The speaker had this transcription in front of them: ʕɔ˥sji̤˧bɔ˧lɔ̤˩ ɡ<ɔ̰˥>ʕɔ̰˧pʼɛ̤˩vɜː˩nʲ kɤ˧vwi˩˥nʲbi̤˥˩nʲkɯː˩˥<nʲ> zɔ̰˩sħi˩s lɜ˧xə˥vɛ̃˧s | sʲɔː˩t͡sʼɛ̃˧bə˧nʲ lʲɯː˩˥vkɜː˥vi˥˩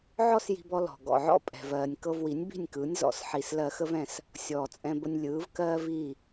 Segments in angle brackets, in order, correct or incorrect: incorrect: ɔ̰˩, correct

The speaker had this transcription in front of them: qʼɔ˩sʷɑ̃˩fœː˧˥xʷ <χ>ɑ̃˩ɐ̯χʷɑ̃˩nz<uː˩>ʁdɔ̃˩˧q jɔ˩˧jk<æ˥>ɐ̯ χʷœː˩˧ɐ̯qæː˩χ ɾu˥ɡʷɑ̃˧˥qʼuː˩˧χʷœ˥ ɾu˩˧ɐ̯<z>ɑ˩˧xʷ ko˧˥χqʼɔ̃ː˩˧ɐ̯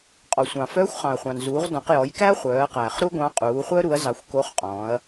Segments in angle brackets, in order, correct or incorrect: correct, incorrect: uː˩˧, correct, correct

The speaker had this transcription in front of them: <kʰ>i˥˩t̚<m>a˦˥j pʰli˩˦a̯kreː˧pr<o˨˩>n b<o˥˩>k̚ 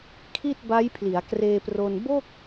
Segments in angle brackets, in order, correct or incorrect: correct, incorrect: b, incorrect: o˧, correct

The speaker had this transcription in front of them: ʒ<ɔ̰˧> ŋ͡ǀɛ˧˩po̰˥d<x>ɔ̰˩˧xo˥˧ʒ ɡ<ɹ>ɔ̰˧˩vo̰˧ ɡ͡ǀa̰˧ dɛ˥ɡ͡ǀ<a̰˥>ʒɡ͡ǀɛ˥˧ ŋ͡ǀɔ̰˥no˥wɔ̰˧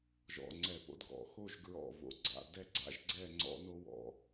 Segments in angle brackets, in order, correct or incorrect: correct, incorrect: ɡ, correct, correct

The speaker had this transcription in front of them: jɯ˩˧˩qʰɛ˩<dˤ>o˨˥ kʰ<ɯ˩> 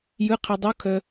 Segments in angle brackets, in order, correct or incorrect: correct, incorrect: ə˩

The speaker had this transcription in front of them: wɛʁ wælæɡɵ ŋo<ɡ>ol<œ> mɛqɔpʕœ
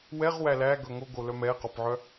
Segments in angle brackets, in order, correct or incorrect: correct, correct

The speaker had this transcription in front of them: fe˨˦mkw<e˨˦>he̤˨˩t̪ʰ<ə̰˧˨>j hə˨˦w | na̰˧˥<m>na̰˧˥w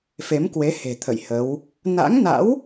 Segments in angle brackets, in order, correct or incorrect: correct, correct, incorrect: ŋ

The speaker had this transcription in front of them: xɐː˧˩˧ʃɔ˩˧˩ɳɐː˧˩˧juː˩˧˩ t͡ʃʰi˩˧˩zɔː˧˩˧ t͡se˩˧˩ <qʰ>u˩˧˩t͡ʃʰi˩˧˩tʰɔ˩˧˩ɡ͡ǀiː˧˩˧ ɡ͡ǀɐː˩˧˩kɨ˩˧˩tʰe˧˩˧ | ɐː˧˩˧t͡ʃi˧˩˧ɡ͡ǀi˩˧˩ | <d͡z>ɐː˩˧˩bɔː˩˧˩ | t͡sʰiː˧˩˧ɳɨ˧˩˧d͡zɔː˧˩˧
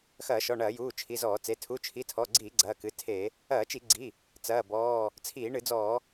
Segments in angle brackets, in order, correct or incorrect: incorrect: tʰ, incorrect: t͡s

